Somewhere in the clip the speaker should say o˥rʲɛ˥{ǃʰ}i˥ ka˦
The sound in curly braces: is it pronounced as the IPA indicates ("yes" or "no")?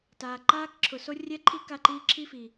yes